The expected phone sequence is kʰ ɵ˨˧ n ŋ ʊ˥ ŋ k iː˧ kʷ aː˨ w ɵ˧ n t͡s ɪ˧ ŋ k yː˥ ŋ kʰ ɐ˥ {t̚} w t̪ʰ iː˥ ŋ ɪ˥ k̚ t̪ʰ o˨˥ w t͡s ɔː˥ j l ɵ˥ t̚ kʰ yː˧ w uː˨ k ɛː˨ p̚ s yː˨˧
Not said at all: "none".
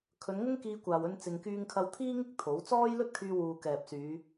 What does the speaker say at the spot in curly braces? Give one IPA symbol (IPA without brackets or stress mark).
none